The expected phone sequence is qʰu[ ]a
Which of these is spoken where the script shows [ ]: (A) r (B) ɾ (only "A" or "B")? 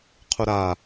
B